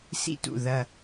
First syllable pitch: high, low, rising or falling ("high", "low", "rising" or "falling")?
falling